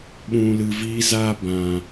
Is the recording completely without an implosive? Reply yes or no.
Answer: no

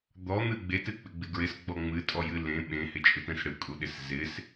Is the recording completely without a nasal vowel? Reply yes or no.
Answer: no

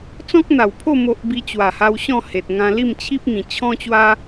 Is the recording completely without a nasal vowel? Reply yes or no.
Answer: no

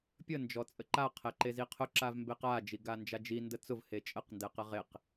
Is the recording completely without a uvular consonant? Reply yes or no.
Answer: no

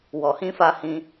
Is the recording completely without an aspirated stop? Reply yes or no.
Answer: yes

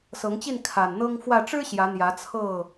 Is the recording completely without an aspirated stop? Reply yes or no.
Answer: no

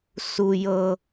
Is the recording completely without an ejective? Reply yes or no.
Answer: yes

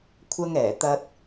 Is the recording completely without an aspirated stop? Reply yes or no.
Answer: no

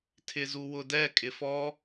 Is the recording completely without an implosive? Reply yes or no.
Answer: yes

